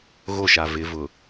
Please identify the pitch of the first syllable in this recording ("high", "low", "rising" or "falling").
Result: falling